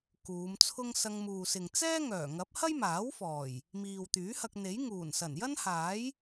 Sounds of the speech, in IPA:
kuː˨˧mt͡sʰʊ˥ŋ sɐ˧ŋmuː˨sɪ˨ŋ t͡sɛː˥ŋœː˨˩ ŋɐ˨˥p̚hɐ˥jmaː˨˥wfɔː˨˩j | miː˨wt̪yː˨˥hɐ˧k̚ n̪e˨˥j ŋuː˨˩nsɐ˨˩njɐ˥n haː˨˥j

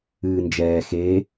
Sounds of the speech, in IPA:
ɨːnd͡ʒɛː xeː

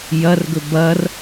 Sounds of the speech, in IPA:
jɐrɡɵ bɐr

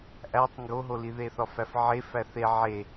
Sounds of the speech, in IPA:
ʔætˤ ŋɡoɦoli ðeθɒfæfʕe fæθe ʕe

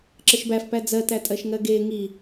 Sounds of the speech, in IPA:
ǁəʃbæfpæ d͡zɜtætʼɜʃŋɜ ɡe ŋi

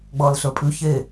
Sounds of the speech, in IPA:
ɡ͡bʌːlɬə˞pʼʉ çe

